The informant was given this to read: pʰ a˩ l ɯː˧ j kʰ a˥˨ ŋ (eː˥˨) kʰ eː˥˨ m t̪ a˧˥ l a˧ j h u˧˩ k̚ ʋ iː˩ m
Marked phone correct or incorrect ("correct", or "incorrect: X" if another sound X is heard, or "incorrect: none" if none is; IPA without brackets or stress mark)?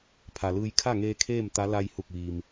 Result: incorrect: eː˧